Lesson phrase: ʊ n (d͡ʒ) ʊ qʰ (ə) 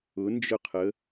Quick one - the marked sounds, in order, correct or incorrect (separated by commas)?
correct, correct